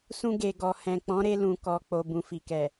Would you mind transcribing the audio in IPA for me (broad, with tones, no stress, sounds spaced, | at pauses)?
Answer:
s ũ˧ ɡ e˨ ɡ ɔ˨ h ɛ̃˨ k͡p ɔ̃˨˦ ɾ e˧ l ũ˨ k ɔ˨ k͡p o˨ b ũ˨ f i˨ k ɛ˨